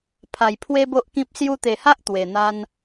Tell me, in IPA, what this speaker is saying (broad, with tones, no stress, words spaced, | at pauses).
pʰa˨˩jpʰwe˦bo˦ʔkĩ˦p̚ sju˧t̪e˨˩ha˦ʔ t̪we˨˩n̪a˦n